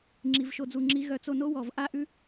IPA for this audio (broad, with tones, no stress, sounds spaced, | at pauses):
ŋ͡ǁ i˨ v ʃ o˧ d͡z u˨ ŋ͡ǁ i˧ ɣ œ˧ t͡s o˧ n o˦ w ɔ˨ v ʔ a˦ ʔ ʉ˦